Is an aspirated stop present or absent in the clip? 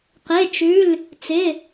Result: absent